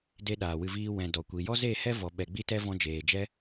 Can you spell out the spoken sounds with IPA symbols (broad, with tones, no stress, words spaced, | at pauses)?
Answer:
de˦ɗaː˨wɨ˧viː˦ wɛ̃˨ dɔ˨kʷi˨ jɔ˦ze˦˨hɛ˦ vɔ˨ɓɛ˨ɡ͡bi˦tɛ˦ vɔ̃˧d͡ʒeː˨d͡ʒɛ˦